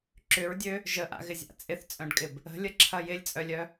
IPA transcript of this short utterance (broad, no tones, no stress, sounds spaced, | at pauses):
ǁ ʏ ɹ dʲ ø | ʒ ə ʔ a̰ ɣ ɪ zʲ a̰ t͡sʼ ɪ θ t͡sʼ œ̃ ɖ kʼ ɪ b | ə̤ lʲ ə ǁʰ ɐ j ɪ lʲ t͡sʼ œ lʲ œ